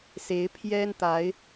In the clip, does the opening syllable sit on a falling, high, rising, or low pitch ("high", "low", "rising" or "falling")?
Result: rising